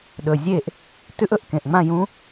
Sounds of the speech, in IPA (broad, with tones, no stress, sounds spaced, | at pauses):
ɗ ɵ˨˩ zʲ e˥˨ ʔ | t ʉ˦˥ ʔ ɵ˧ ʔ k ẽ˨˩ ʔ ŋ͡m ã˥˨ j ũ˦˥